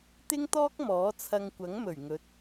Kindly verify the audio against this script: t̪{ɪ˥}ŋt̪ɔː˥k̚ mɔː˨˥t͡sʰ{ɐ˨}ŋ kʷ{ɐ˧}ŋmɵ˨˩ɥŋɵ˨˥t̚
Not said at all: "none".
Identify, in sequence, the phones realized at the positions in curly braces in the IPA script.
ɪ˥, ɐ˧, ɐ˨˥

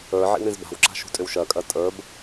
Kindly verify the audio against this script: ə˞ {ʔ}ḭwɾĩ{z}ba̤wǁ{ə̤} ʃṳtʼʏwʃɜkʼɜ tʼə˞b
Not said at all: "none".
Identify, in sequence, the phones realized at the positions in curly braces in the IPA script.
ʕ, z, a̤

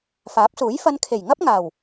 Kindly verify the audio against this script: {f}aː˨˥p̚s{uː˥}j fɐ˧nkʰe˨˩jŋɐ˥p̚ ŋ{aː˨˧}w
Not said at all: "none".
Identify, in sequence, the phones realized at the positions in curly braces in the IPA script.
f, uː˨˥, aː˨˩

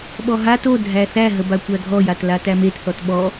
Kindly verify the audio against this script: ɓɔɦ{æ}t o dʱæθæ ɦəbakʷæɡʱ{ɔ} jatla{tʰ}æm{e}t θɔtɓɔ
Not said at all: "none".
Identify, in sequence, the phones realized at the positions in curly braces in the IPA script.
a, ɔ, t, e

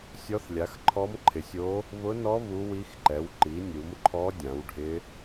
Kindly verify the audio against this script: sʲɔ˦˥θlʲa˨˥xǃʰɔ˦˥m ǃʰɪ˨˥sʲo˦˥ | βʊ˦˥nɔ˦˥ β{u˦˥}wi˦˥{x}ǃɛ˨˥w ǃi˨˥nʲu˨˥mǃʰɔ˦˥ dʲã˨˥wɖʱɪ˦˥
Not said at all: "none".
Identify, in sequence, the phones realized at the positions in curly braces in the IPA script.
u˦˥, x

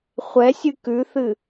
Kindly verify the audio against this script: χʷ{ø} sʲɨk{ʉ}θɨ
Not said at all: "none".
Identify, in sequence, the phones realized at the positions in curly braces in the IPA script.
ɛ, ʉ

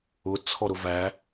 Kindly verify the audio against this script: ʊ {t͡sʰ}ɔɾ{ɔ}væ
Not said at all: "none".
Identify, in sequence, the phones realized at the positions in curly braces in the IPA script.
t͡sʰ, ʊ

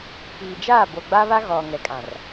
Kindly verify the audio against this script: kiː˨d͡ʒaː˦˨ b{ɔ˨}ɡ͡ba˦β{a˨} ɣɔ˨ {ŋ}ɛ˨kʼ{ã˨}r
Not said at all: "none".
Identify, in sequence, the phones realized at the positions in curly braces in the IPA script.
o˨, a˦, ŋ, ã˨

